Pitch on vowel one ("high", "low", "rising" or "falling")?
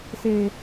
low